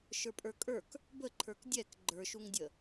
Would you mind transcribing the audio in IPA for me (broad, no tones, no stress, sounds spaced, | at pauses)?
ʃ ə˞ pʼ ə˞ kʼ ə˞ k | b ə ǃʰ ə˞ k dʲ ɛ k ɡ͡ǃ ə˞ ʃ u ŋ dʲ ə